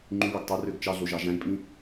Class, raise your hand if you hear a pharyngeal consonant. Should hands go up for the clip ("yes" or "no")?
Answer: no